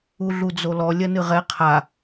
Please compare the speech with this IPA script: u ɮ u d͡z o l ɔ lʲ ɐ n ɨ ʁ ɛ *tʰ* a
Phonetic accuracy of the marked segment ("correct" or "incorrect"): incorrect